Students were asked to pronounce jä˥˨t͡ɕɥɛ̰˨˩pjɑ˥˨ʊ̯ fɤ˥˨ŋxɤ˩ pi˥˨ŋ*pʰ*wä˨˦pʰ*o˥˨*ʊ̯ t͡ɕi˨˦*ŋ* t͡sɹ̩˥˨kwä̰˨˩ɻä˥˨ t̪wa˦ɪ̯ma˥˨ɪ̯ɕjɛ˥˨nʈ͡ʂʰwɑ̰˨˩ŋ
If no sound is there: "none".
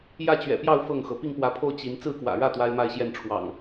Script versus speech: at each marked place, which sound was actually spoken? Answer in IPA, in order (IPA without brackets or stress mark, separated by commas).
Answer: p, o˥˨, n